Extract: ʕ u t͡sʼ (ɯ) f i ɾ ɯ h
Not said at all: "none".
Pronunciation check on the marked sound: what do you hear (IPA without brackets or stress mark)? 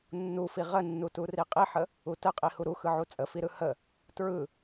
ə